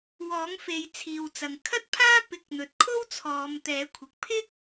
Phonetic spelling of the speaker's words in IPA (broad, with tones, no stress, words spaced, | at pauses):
wɔː˨˥ŋfe˨˧j t͡sʰiː˨wt͡sɐ˨ŋ kʰɐ˥t̚pʰaː˥ pɪ˨˥k̚n̪ɵ˨t̚kʰo˥w t͡sʰɔː˨˧mt̪ɛː˨˥kʷʰɪ˨k̚ pʰɪ˥k̚